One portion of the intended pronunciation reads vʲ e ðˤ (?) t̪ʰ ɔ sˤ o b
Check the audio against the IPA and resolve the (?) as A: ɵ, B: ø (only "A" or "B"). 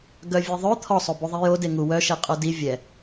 A